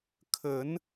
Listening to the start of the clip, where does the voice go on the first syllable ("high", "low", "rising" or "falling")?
rising